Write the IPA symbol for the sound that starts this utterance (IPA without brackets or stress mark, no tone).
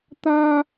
t̪